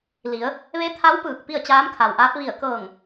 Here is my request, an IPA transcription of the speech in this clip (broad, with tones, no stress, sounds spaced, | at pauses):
l i˩˧ ə̯ | ʋ e˧˥ t̪ʰ a˧˥ w p ɯː˧˩ k̚ p i˥˨ ə̯ t͡ɕ aː˧˥ m kʰ a˩ w ʔ aː˧˥ p̚ ʋ i˧˩ ə̯ k ɤː˧˩ ŋ